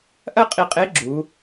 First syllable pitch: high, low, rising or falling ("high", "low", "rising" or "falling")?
high